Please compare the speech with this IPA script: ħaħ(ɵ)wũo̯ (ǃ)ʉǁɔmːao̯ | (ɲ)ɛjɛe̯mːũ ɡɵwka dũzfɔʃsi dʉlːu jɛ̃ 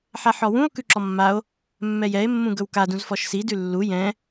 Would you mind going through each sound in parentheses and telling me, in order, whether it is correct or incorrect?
incorrect, incorrect, incorrect

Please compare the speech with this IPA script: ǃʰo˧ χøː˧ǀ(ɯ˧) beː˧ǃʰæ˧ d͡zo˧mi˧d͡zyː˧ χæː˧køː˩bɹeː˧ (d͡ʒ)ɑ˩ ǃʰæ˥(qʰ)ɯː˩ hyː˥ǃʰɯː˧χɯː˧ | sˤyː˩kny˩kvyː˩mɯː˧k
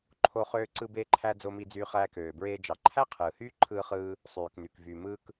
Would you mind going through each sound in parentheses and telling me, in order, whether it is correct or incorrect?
correct, correct, correct

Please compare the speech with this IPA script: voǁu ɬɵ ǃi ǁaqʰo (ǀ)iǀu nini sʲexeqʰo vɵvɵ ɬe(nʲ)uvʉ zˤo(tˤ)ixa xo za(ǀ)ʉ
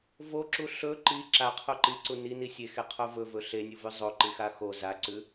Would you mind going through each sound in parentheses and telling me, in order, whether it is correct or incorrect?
incorrect, correct, incorrect, correct

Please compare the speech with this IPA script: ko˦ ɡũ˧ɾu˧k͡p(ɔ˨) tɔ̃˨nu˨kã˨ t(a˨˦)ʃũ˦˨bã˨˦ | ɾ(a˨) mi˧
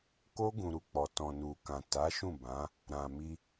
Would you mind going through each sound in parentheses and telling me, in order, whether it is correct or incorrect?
correct, correct, incorrect

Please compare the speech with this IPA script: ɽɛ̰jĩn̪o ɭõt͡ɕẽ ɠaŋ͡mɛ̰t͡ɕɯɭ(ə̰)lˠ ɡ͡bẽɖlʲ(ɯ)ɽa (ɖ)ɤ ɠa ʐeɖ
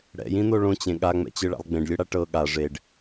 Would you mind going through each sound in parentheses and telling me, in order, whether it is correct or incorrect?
incorrect, correct, incorrect

